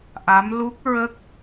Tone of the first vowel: rising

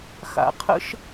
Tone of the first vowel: low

